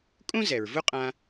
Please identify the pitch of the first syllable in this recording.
high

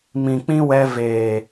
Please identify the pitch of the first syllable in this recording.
low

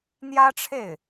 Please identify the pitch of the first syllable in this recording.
high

